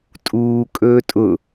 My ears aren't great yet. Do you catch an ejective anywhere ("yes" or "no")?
yes